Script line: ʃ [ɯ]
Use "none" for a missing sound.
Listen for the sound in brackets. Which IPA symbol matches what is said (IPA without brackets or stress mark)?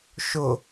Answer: ʊ